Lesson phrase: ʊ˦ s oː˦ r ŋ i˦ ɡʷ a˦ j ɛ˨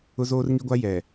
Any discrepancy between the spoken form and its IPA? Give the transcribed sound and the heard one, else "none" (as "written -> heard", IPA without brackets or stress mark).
s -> z